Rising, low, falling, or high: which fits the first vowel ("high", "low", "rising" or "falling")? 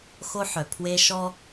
high